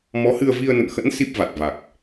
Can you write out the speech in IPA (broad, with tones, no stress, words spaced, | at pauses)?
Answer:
mɔ˨˦hɨ˧ə̯ vi˧ə̯nə̰˧˨nxə̰˧˥n si˦˥p̚va˨˩t̚ va˨˩k̚